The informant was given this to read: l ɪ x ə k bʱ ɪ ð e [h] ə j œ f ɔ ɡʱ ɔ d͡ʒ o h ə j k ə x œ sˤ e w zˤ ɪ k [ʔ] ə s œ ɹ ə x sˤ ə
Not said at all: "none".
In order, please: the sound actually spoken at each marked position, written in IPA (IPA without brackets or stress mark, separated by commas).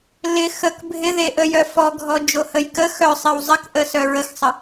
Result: ʔ, ʔ